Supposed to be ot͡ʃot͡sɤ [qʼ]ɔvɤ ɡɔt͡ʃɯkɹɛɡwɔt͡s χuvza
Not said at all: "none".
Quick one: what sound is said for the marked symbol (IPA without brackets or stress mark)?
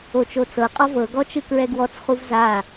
qʼ